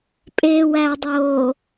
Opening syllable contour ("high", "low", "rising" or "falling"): low